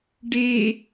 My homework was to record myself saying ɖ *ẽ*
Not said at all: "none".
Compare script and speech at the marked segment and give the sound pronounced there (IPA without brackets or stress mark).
e